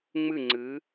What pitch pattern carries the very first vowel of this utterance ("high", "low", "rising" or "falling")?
falling